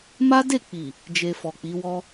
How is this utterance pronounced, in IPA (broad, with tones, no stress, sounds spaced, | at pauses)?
m a˦ d e˦˨ k͡p i˨ | d͡ʒ e˧ f ɔ˨ k͡p i˨˦ w ɔ˦